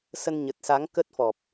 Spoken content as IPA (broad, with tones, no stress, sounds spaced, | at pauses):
s ə˧ n ɲ ə˨˩ t̚ s a˨˦ ŋ k ə˦˥ t̚ f ɔ˨˩ p̚